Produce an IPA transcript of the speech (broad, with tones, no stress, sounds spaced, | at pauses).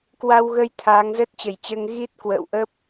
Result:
k w a˧ w ɣ ə˧ j t̪ʰ aː˨˦ ŋ z əː˦˥ t̚ t͡ɕ ə˧˩ j t͡ɕ əː˧ ŋ ɣ i˦˥ t̚ k w ə̰ː˧˨ w ʔ ə˦˥ p̚